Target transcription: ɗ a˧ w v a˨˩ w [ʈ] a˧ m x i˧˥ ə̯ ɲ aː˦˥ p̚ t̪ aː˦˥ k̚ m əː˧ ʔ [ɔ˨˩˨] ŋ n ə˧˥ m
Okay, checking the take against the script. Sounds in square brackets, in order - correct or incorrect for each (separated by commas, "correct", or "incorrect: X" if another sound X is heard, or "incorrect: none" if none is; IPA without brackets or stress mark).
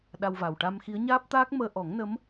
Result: correct, incorrect: ɔ˨˩˦